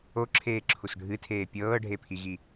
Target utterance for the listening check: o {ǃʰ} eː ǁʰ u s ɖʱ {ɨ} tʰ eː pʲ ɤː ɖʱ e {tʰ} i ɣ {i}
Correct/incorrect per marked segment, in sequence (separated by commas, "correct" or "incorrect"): incorrect, correct, incorrect, correct